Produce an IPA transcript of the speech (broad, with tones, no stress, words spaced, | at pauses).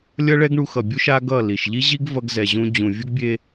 lʲʌ˦ɭɛ˦ɡɳu˧ xʌ˨bʲu˦ ʃa˦ɡʌ˦˨ li˨ʃʎi˦ʑi˦ɡ vʌ˧ɡzɛ˨ʑũ˧ d͡ʑũ˨vʲu˦ɡ bʲe˧